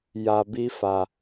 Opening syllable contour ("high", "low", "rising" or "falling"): low